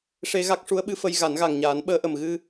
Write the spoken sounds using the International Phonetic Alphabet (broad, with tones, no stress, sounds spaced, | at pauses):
ʂ e˧ ɣ a˦˥ k̚ ʂ u˧˥ ə̯ ɓ ɨ˧˥ f ə˧ j ɣ a˨˩˦ n ɣ a˨˩ ŋ ɲ aː˨˩˦ n ɓ əː˧ ʔ ə˨˩ m ɣ ɨ˧